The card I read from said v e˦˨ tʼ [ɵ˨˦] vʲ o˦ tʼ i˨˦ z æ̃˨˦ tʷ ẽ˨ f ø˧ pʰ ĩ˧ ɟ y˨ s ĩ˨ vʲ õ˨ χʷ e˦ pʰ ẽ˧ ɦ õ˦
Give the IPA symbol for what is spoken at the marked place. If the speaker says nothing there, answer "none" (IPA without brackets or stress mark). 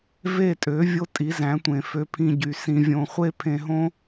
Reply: ø˨˦